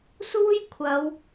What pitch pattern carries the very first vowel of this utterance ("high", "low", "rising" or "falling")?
high